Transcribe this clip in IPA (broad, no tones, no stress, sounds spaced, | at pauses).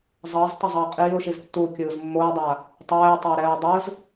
zˤ ʌː z tˤ ʌ zˤ ʌː qʼ iː ʊ̯ ʃ i z tː u kʲ ɯː z mː o ɪ̯ dˤ a | tˤ ɛː ɪ̯ tˤ ʌ ɪ̯ ɾ ɛː ʊ̯ dˤ ɯ z